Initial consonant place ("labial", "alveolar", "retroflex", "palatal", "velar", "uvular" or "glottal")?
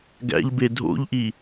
velar